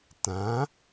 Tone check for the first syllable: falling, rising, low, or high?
rising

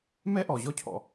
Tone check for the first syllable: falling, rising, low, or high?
high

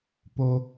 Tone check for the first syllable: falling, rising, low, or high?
high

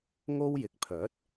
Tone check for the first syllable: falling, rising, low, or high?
high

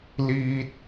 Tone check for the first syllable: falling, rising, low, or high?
low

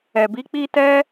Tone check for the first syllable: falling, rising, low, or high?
low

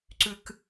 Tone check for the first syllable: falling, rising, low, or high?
low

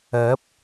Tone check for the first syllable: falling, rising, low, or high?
rising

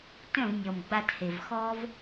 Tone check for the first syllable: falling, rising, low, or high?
falling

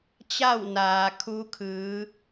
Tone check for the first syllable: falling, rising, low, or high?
falling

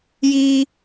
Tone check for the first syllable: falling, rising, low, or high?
high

